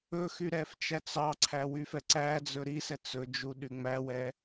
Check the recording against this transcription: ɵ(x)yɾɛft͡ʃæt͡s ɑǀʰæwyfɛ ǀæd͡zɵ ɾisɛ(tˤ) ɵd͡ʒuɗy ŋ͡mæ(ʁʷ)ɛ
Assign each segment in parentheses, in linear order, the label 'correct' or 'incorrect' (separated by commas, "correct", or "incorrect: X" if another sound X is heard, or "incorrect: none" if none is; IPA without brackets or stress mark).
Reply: correct, incorrect: t͡s, incorrect: w